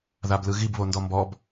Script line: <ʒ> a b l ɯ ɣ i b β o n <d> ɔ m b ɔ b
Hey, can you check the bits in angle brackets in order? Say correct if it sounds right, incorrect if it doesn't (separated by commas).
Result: incorrect, correct